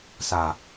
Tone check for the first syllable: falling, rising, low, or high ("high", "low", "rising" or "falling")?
low